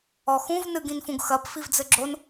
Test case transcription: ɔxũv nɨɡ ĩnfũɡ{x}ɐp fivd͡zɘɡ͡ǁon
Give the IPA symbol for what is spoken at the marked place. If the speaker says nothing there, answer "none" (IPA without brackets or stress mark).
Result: x